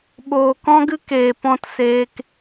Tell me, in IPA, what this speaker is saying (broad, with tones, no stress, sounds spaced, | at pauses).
ɓ oː˨ k ɔ̃˦ ɡ ɨ˦ k eː˨ p ɔ̃˦ t s eː˦ k